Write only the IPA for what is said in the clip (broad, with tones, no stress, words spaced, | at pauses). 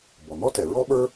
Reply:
bɔ˩n̪ɔ˥ tɛ˩ ɹɔ˥ɓə˞˥